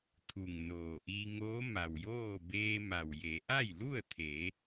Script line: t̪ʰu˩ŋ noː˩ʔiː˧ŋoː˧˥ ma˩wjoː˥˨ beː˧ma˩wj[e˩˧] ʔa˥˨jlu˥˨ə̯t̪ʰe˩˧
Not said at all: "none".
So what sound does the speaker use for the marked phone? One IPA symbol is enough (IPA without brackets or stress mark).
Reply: e˩˧